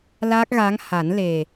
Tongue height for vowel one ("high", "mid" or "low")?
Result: low